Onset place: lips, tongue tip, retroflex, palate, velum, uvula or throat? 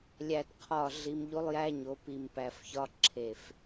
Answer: tongue tip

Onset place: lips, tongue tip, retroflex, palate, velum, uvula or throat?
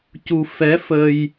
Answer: palate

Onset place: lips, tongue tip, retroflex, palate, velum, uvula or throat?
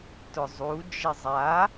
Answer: tongue tip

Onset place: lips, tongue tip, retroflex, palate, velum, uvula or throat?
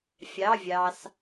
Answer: lips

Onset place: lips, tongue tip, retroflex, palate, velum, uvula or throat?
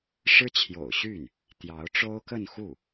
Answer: retroflex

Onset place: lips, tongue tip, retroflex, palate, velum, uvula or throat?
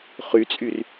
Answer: uvula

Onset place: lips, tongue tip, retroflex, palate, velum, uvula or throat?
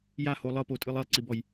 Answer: palate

